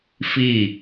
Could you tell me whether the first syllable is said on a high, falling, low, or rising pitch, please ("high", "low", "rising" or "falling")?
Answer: falling